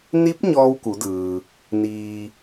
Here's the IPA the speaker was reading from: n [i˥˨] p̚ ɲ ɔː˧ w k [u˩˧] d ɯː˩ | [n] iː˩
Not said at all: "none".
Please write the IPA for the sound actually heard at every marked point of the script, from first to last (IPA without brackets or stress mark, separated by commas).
i˧˥, u˩˧, n